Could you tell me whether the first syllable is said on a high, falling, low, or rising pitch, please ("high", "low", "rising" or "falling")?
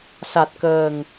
low